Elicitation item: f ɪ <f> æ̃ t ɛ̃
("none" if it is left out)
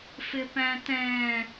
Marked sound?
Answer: p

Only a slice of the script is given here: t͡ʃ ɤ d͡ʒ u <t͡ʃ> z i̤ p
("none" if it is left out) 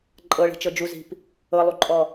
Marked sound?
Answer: none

